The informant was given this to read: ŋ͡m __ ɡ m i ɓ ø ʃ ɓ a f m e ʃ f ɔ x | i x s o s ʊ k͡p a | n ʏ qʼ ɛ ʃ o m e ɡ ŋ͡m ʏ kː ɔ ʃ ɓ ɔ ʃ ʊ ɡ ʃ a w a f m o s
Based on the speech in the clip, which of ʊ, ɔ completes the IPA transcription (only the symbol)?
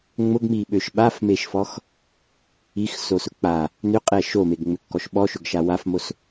ʊ